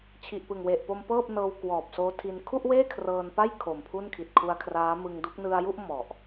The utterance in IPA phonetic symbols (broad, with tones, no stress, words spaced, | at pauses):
t͡ɕʰi˨˩ʔpɯ˨˩ŋwe˨˩ʔpo˧m pɤː˥˩p̚nɤː˧w kwɔː˨˩p̚soː˦˥tʰi˧n kʰu˥˩ʔweː˥˩ kʰrɤː˧npa˥˩j kʰo˨˩m pʰu˥˩nkʰi˨˩t̚ kʰu˧a̯kʰraː˦˥mɯ˧ŋdu˦˥k̚ nɯ˧a̯ju˥˩ʔ mɔ˨˩ʔ